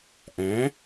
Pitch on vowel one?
rising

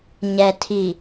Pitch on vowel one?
low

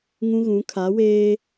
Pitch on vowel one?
high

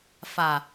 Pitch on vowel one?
low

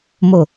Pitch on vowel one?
low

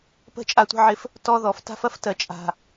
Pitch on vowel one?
falling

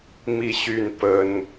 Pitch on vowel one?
falling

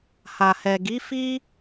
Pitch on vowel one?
low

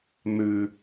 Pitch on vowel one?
high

